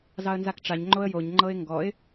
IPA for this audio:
z ɑ ə̯ n z a k ʈ͡ʂ a ɲ ŋ͡ǃ o ə̯ j o ɲ ŋ͡ǃ ɤ ɪ̯ ŋ ɡ ɔ ɪ̯

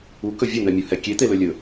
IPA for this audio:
u k ɵ vʲ ɵ n̪ ɛ mʲ u h ɛ kʲ e t̪ e l ɵ lʲ ɵ

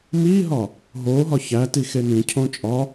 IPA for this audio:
m iː ɦ ɒ | ɦ oː ɦ ɒ ç æ t i x e n ĩ cʰ õ t͡ʃʼ ɒ

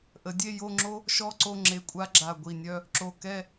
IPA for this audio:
ʔ ə˩˧ dʲ e˥˧ j o˥˧ ŋ͡ǁ o˥ | ʃ ɔ˥˧ ǀ o˥˧ ŋ͡ǁ e˧˩ kʷʼ a˥ ɡ͡ǁ a˧˩ ɡʷ i˧˩ nʲ œ˥˧ | ǁ o˧˩ k ɛ˥˧

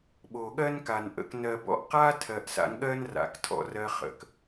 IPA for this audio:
ɓ o˨ ɠ ɜ˦ n k a˨ n ʔ ə̰˨ k n ɜ˨ b ɔ̰˧ ʔ q a˦ tʰ ɜ˨ ʔ s a̰˧ n ɠ ɜ˦ n r a̰˨ k tʰ ɔ̰˧ r ɜ˧ χ ə̰˨ k

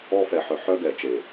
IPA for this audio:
ɔ˧ f ɛ˨ ħ œ˨ ħ œ˧ ɡ ɛ˨ t͡ʃ e˨

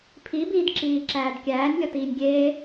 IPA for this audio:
pʰ i b iː d ǁ iː ǁ æː d kʲ æː nʲ lʲ ɒ t iː nʲ ɡʲ eː

